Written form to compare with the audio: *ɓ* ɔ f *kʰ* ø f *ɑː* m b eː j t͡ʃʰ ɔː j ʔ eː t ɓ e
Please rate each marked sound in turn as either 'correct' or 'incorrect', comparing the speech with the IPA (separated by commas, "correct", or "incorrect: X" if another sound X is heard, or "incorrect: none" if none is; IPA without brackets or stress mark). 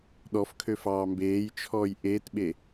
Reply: incorrect: ɗ, correct, correct